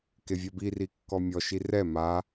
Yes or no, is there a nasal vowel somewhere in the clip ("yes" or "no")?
no